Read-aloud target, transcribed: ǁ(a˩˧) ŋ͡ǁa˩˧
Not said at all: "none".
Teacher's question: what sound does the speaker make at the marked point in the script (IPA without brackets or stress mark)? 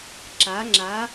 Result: a˩˧